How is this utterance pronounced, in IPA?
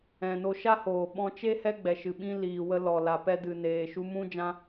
ɛ̃˨ n o˧ ʃ a˦ h oː˨ ɓ ɔ̃˧ t͡ʃ e˦ h ɛ˦ ɡ͡b ɛ˨ ʃ ɨ˨ ɓ ĩ˧ l iː˨ w ə˧ l ɔ˨ l a˨ p ɛ˧ d ɨ˨ n eː˨ ʃ u˧ m ũ˦ d͡ʒ ã˦

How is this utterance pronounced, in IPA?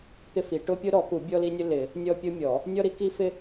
t̪ ɪ˥ f i˨˩˦ ʈ ʊ˥ pʲ ʊ˥ ɾ ɔ˨˩˦ k u˨˩˦ bʲ ɔ˥ l i˥ nʲ ʊ˥ l ɪ˨˩˦ | nʲ ɔ˥ pʲ ʊ˥ mʲ ɔ˨˩˦ | nʲ ɔ˥ ɾ i˥ k i˥ f ɪ˥

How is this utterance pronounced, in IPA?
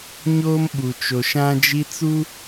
ɲ oː˦ m ɓ u˨ t͡ʃ o˨ ʃ ã˦ d͡ʒ i˦ t͡s u˦

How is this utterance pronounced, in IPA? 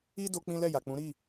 i˦ d o˦ k͡p ĩ˦ l ɛ˦˨ j a˨ k͡p ũ˨˦ ɾ i˦˨

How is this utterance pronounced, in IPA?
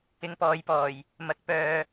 ɪ˨˧ ŋ p ɔː˨ j p ɔː˨˩ j | m ɐ˨˥ k̚ p œː˨˧

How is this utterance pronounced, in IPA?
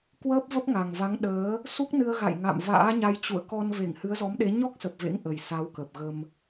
k w əː˦˥ p̚ v ə˦˥ p̚ ŋ a˨˩ ŋ v a˨˦ ŋ ɗ əː˨˦ | s u˦˥ k̚ n ɨ˧ ə̯ ɣ a̰˧˨ j ŋ a̰˧˨ m v a̰ː˧˥ ɲ a˧ j t͡ɕ ṵ˧˨ ə̯ k ɔ˧ n v e˧˩ ŋ h ɨ˨˦ ə̯ z ɔ˨˦ m ɗ e˨˦ ɲ ɔ˦˥ k̚ s ə˨˩ p̚ v ḛ˧˥ ŋ ʔ ə˨˩ j s a˨˦ w k ə˨˩ p̚ ɣ ə˧ m

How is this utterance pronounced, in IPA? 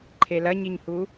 ǃʰ e l ɐ ɲ i ɲ h u

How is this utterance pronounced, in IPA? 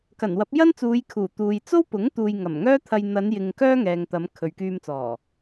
k ɐ˨˩ n w ɐ˨˥ p̚ j ɐ˥ n t͡s uː˨˧ j kʰ uː˨˩ t̪ uː˨ j t͡s o˥ w p ʊ˨˥ ŋ t̪ uː˨ j ŋ ɐ˨˩ m ŋ œː˥ t̪ʰ ɐ˧ j n̪ ɐ˨˧ n j ɪ˨ ŋ k œː˥ ŋ ɛː˨ ŋ t̪ ɐ˨˧ m kʰ ɵ˨ ɥ k yː˧ m t͡s ɔː˨˩

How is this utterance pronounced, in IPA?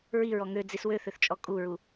ɹ i ɹ ɔ ŋ ø d͡z i s w ø θ ø θ t͡ʃʼ ɔ kʼ u ɹ u

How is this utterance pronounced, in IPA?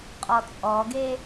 qʼ ɔ t͡sʼ ɔ ɡ e

